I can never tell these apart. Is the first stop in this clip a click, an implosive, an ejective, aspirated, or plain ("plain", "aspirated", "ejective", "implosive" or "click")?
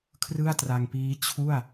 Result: aspirated